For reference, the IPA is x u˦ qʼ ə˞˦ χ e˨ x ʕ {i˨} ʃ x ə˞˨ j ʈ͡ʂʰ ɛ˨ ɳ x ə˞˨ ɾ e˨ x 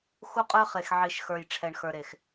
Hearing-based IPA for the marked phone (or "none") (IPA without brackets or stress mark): i˨